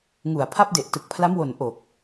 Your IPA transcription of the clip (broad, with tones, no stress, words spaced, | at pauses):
ŋu˨˩a̯ pʰa˦˥p̚de˨˩ʔ tɯ˨˩k̚ pʰla˦˥mwo˨˩n ʔo˨˩k̚